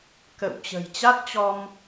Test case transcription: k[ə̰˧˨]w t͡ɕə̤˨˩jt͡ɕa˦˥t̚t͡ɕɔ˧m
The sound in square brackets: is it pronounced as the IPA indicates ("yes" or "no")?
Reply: yes